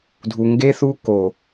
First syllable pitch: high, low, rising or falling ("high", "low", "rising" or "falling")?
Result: low